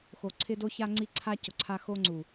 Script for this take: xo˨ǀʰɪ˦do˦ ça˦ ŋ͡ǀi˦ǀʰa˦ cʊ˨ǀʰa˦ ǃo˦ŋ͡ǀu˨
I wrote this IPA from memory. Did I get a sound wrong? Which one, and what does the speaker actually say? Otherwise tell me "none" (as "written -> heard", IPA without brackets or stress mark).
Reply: ǃ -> x